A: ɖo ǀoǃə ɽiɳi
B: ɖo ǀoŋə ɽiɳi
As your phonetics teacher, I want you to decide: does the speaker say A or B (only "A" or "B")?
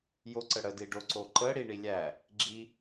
A